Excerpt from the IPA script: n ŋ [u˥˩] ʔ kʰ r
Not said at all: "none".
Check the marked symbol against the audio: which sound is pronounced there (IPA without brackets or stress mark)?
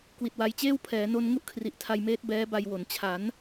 u˥˩